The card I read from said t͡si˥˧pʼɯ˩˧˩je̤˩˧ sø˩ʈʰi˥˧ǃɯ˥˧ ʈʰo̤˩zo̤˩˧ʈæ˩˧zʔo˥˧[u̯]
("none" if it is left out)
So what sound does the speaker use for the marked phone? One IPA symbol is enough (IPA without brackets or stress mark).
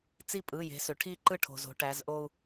u̯